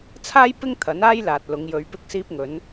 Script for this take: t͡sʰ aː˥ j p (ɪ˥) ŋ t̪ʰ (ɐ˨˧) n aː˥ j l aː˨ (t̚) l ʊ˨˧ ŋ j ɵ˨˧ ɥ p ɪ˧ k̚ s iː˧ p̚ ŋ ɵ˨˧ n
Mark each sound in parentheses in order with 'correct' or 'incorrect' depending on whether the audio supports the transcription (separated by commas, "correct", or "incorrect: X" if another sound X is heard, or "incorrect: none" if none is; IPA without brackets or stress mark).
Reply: correct, incorrect: ɐ˨˥, correct